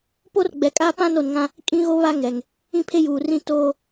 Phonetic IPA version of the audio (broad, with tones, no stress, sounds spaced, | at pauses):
p o˦ r ɡ͡b ɛ˨ kʼ a˦ p ã˦ n o˨ n ŋ ã˦ | kʼ ĩ˦ ɣ o˦ β a˦ ŋ ɛ˨ ŋ | ĩ˦ pʰ e˦ j uː˨ r ĩ˦ t oː˦